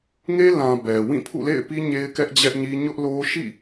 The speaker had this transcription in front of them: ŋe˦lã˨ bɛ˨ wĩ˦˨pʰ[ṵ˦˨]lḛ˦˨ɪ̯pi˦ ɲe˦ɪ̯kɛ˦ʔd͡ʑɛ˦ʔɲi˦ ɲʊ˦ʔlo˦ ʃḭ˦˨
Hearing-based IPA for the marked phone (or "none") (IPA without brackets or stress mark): ṵ˦˨